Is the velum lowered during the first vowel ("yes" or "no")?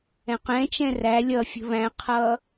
yes